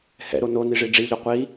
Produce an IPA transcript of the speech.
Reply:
hɛ̰ɾo noni ʐiɖ͡ʐiʎɔ qʷi

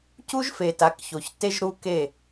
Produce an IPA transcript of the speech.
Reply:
cu˦ʒfe˨ ta˨˦kço˨çte˦ʒ ɾu˦ke˦˨

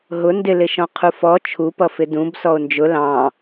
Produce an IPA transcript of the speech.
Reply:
ɦʊ ndɪlɪʃɔ̃ qʰufɔ t͡ʃʰupʌ fɪdũb sɔo̯nd͡ʒʊ lɑ̃

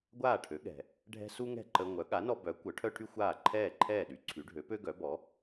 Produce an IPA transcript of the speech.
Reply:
ɡʷaː˥˩ʈʰø˩˥ɠɛ̤˩ | ɖʱɛ̤˥ su˥ŋɛ̤˥˩ǃə˧ŋʷœ˩˥ ɠa˩˥nɔ˧bœ˩˥ kʷœ˩˥ʈʰœ˥ʈʰy˥xʷaː˥˩ ǃʰɛː˥˩ǃʰɛː˥˩ɗy˩˥ǀʰy˩˥ ɖʱø˩˥pø˥ɡœ˩˥bɔ˩˥

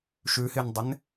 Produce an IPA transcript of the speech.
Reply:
ʃʉhɪndˤɪn

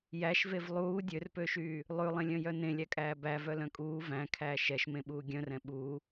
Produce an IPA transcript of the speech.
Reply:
jæʃvev lˠuː dʲørpøʃyː | lˠʉlˠẽlʲœ̃jœ nẽlʲækʼæː bævœlœ̃ kʼuː væ̃kʰæː ʃɛʃmẽɓuː ɡʲœ̃rɛ̃ ɓuː

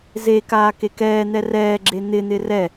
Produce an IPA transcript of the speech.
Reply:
ze kaːkekɛːn̪ɛ rɛːɡ͡ǁe n̪ɪn̪ɪ rɛ

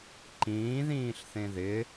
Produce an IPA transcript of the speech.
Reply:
ǃĩːðĩːɬθẽ ðɪ

